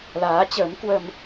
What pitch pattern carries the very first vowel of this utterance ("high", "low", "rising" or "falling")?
rising